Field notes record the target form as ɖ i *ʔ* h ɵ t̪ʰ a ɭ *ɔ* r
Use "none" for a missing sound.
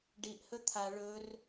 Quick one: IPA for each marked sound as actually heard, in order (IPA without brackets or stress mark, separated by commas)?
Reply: ʔ, ɵ